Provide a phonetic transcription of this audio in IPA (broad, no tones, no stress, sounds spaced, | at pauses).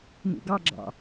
n ṵ ɡ ɑ ɡ͡ǁ ɑ̰